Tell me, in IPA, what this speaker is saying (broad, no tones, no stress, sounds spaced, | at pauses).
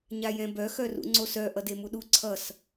ɲ a j ɛ̃ b œ x œ r ṵ ŋ͡ǀ o s œ ʔ ʌ d e m u ɗ u ǀʰ ʌ s